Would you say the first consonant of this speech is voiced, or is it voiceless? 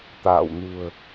voiceless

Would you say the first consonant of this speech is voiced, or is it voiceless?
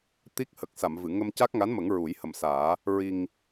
voiceless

